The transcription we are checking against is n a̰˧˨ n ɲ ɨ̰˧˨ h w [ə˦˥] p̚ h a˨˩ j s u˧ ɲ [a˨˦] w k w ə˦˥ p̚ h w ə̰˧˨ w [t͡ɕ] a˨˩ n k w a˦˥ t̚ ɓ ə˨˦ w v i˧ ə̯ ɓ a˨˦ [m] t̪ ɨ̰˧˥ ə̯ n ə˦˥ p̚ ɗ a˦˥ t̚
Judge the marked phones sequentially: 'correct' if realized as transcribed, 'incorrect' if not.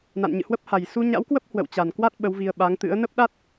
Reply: correct, incorrect: a̰˧˥, correct, incorrect: ŋ

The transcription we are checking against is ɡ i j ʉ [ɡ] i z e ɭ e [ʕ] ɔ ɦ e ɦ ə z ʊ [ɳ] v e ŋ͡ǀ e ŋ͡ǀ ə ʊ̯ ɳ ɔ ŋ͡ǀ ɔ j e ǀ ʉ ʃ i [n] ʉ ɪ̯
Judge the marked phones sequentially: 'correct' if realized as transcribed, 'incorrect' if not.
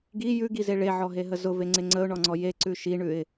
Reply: correct, correct, incorrect: none, incorrect: ɳ

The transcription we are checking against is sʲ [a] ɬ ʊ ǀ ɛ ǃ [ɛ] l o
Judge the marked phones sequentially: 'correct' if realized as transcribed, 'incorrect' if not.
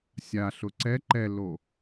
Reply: correct, correct

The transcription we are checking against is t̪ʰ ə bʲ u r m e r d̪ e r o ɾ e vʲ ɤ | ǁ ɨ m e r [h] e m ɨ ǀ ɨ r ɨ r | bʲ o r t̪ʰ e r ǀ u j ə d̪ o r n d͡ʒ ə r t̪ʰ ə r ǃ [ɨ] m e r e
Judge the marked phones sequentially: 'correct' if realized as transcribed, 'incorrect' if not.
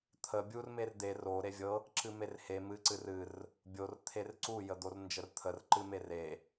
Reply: correct, correct

